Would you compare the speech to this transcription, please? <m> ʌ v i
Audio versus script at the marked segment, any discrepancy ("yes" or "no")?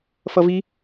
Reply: yes